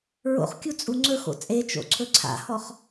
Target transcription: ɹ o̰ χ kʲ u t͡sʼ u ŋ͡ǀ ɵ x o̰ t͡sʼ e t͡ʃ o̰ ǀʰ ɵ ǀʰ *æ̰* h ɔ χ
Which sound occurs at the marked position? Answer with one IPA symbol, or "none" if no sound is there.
a̰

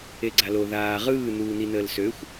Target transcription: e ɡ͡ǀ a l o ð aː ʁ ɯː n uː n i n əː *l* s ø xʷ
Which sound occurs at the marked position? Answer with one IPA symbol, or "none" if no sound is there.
l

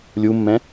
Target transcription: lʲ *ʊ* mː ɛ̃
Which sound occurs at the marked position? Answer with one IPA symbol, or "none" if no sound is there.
u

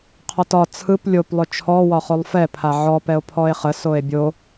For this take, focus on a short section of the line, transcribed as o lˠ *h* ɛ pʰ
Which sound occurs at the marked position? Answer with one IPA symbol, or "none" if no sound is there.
f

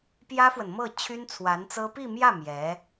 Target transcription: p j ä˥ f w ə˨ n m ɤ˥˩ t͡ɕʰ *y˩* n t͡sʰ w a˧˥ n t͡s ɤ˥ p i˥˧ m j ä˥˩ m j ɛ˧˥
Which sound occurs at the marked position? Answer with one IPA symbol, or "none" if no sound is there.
y˥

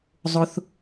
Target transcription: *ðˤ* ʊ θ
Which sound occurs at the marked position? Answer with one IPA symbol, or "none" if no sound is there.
zˤ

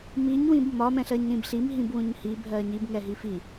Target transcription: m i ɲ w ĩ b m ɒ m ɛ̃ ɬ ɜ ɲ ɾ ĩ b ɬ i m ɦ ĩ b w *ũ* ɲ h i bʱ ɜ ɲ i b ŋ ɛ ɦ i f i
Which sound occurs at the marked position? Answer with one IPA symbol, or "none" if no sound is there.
ũ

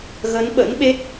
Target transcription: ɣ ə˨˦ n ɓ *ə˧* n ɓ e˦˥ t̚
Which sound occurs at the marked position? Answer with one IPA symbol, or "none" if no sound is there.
ə̰˧˥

